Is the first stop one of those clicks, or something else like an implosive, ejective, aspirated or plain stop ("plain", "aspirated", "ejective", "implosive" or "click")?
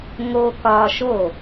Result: plain